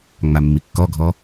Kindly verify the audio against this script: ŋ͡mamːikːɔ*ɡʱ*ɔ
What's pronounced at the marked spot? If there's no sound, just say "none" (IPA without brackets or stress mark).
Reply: ɡʱ